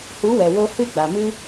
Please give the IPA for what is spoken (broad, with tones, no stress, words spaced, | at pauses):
hu˨˦wɛ˨wo˧ hɨ˦˨ɡ͡ba˨mɨ˦